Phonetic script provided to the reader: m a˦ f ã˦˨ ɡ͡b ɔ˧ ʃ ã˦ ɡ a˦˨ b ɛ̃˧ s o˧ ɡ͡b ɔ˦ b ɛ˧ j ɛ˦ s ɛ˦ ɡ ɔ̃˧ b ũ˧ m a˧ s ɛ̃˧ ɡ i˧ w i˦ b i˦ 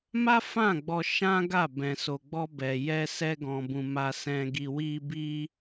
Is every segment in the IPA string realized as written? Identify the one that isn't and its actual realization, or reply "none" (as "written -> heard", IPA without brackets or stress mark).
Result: none